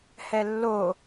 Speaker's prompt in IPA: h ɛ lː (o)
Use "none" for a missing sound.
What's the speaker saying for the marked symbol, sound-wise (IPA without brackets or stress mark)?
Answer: o